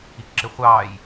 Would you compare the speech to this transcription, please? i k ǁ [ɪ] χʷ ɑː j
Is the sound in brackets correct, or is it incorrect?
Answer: correct